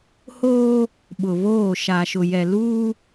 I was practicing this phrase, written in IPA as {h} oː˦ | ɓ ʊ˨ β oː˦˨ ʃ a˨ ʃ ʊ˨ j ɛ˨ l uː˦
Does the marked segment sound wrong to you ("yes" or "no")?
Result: no